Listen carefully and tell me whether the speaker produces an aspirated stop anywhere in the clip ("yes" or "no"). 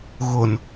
no